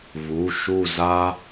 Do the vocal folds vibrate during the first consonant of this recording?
yes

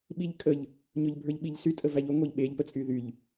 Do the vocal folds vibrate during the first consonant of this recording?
yes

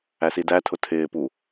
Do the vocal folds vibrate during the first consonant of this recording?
no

